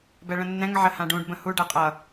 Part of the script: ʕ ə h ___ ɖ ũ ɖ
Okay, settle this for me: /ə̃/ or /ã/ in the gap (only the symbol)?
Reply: ã